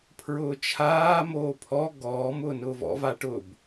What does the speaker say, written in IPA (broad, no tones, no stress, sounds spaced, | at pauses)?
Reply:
pʰ ɹ ʊː t͡ʃʰ aː m oː pʰ ɔ ɡ ɔː m ʊː n ʊː v ɔ̰ v a ʈ ʊ b